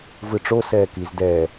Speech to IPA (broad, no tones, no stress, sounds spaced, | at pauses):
v ɯ ʈ͡ʂ o s ɛː k i z d ɛ